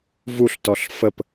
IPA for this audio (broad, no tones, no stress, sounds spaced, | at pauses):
v u ɬ t ɔ ɬ f ə p